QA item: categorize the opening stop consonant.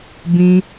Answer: plain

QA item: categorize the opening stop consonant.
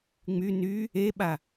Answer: implosive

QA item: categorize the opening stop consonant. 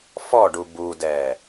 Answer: plain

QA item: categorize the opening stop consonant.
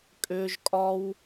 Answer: ejective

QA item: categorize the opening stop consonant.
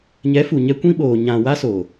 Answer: plain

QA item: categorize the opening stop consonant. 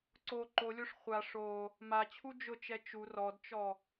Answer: click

